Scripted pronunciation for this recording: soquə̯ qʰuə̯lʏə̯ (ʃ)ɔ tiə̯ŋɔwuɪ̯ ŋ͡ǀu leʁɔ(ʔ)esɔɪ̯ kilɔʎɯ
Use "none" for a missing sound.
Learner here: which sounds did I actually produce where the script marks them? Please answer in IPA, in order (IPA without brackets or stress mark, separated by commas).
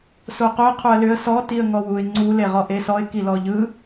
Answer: s, ʔ